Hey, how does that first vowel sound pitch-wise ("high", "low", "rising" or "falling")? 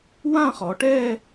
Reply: falling